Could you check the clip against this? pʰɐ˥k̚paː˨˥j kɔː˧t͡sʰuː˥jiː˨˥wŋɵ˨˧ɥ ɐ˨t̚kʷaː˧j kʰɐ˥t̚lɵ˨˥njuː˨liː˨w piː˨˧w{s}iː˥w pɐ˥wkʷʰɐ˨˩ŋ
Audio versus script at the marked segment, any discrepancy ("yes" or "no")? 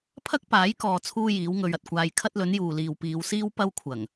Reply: no